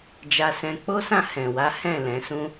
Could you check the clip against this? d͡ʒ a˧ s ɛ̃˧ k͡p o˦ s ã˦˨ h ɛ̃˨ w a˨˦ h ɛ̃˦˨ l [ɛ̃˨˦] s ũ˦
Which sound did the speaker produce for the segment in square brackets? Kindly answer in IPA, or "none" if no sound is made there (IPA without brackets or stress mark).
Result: ɛ̃˨˦